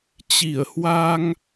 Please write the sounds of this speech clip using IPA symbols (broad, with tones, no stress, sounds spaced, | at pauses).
t͡ɕ i˧˩ ə̯ h w a˧ ŋ